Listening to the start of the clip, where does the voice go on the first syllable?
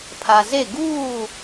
low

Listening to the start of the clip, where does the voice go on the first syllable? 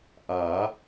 rising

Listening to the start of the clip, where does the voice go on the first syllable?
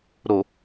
low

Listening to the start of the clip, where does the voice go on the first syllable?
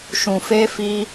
low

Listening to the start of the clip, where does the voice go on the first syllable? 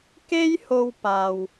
high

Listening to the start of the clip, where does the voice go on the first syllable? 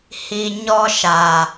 low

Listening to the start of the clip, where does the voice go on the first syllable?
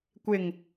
low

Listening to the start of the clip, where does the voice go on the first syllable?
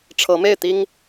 rising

